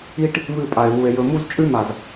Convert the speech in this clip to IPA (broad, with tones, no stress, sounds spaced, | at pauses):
i˦ ʈ | β ɨ˦˨ pʼ a˨ e̯ β u˨ e̯ j ɵ˨ m u˦ z t͡ʃʼ ʉ˦ m a˨ z